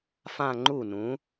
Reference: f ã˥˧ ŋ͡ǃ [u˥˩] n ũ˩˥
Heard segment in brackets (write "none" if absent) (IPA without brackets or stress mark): u˥˩